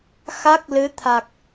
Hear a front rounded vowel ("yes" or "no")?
no